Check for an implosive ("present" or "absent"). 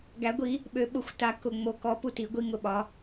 present